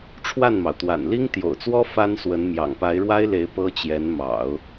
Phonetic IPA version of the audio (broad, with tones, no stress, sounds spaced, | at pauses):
ʈ͡ʂʰ w a˥˩ n m ɑ˩ ʊ̯ t̪ w a̰˨˩ n l i˥ ŋ t̪ j o̰˨˩ ʊ̯ t͡s w ɔ˥ f a˥ n s w ə˧˥ n m j ɑ̰˨˩ ŋ p a˧˥ ɪ̯ ɻ w a˥ ɪ̯ l e˧˥ ɪ̯ p ɤ˥ t͡ɕ j ɛ˧˥ n m ɑ̰˨˩˦ ʊ̯